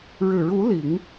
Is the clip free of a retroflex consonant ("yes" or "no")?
no